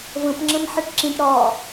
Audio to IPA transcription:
və̃p ŋ͡ǁə̃mħɛʈǁĩʈ ɾɒ

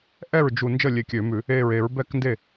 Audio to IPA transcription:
ʔɛ˥˩ɹ d͡ʒu˧˩ nd͡ʒəː˥˩lʲe˧˩kʲø˧˩˧mʉ˧˩˧ | eː˧˩ɹe˧˩˧ɹ bɛ˥˩knde˥˩

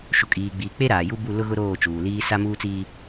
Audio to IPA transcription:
ʃu˨kʼiː˨ɡ͡biː˨k͡pe˦ ɾaː˨ju˦ bu˦˨lʊ˦ɣʊ˦ ɾoː˦˨t͡ʃuː˨ liː˦ sa˦muː˦t͡siː˦

